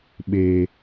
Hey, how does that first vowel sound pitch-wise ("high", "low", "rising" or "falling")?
low